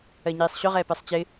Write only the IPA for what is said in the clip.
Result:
ɜɲiːsˤɕʊʁɛː pɛsˤt͡ɕɪ

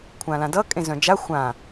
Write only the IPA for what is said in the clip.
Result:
kʷʰãlãdʌ kʼẽzœ̃d͡ʒa xʷã

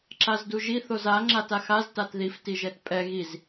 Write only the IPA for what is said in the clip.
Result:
ǁazduʒi θoza ŋ͡ǁataxaz tatðif tiʒɛtpʼɛ ɣiz

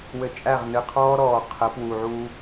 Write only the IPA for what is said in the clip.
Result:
wɘ˨t͡ʃʼæ˦˨ʁnɨ˨ qʰɔː˦ɾɔː˨qʰə˨˦ pwuː˨ʕuː˦

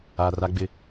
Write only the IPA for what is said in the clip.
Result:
a˨ra˦ɡ͡bɪ˦

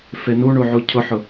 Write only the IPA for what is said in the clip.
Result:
fenuɳuʕu cʰʊħʊ

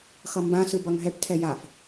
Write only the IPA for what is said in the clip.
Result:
xʌmbãsɯ bʌŋɦɛʈtʰɛ jaf

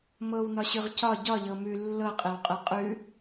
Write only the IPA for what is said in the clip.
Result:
mɤwnɒɕʉʁ cɒ ɟɒʎɤ mʉ lːɤqʼewqʼɛ qʼʉ

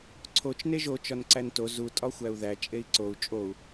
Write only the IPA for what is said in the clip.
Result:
ǀʰot͡ʃ neʒo t͡ʃɒnǀænto zu tʼɒxʷæu̯ðæ t͡ʃʼei̯ǀou̯ t͡ʃʼou̯

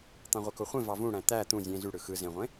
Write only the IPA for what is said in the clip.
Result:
t̪ɑ̃ʁʷekoχʷẽ vɑvũɽæ̃ t̪æ t̪ũ zʲẽ zy ɽɯxɯ zẽʁʷẽ

